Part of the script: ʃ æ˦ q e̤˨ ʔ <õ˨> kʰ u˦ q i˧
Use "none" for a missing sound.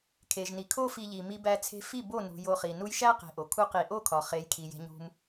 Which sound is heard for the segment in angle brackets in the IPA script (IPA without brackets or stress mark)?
o˨